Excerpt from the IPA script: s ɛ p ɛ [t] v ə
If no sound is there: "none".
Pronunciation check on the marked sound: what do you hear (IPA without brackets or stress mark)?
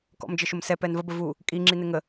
n